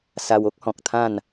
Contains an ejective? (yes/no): no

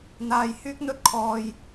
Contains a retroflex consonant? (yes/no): no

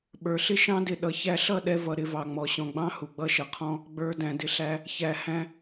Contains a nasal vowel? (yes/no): yes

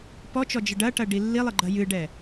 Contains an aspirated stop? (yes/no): no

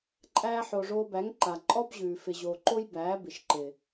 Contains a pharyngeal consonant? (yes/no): yes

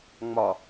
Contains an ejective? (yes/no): no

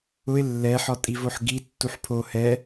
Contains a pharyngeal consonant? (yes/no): yes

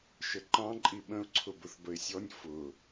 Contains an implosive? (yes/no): yes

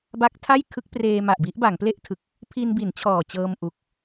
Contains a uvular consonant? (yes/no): no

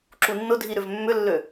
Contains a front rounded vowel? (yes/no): yes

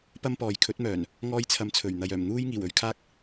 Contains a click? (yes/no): no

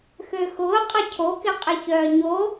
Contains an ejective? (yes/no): yes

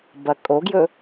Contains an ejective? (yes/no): yes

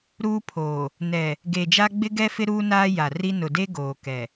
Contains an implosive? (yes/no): no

